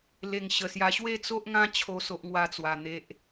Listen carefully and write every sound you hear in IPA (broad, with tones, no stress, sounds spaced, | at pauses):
l e˨˩ ŋ ɕ ə˨˩ s j a˧ ɕ w e˥˧ t͡s o˦ ʔ ŋ ã˦ t͡ɕʰ o˥˧ s o˦ ʔ ŋ w a˦ t͡s w a˨˩ n̪ e˨ ʔ